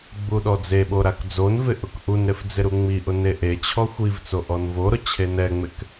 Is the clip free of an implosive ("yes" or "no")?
no